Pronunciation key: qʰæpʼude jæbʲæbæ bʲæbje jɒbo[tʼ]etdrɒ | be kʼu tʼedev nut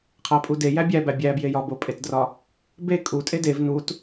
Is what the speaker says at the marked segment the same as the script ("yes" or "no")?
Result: no